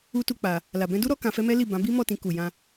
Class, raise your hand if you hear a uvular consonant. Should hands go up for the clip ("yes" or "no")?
no